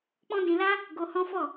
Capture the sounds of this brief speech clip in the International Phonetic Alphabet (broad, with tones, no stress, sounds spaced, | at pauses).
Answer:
k͡p ɔ̃˦ d ĩ˧ l a˦ | ɡ o˧ h ɔ̃˦ f ɔ˦˨